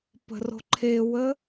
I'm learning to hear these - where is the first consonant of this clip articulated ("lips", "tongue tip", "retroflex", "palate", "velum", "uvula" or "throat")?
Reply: lips